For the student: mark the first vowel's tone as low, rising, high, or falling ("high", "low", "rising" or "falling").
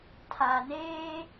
low